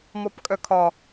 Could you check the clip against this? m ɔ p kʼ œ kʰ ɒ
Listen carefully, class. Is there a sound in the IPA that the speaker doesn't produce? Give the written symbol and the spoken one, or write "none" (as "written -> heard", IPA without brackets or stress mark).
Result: none